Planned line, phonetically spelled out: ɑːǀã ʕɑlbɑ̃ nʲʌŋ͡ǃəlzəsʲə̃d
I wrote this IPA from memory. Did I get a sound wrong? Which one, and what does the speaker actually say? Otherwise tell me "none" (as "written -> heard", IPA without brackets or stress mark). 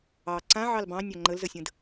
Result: ʌ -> ɑ